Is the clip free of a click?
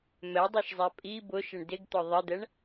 yes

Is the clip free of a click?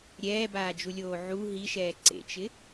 no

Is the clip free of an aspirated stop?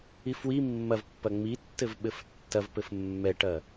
yes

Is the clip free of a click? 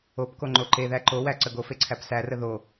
no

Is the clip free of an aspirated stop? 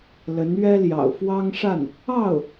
yes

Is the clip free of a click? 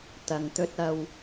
yes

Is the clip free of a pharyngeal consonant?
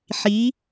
no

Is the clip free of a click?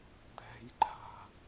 no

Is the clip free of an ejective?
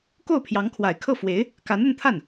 yes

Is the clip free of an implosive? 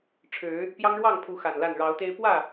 yes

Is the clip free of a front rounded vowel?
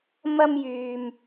no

